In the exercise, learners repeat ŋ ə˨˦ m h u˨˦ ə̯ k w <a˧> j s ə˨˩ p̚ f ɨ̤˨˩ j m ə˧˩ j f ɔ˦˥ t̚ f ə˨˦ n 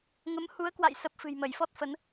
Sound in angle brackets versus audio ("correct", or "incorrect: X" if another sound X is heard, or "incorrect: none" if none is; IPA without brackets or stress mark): incorrect: a̰˧˨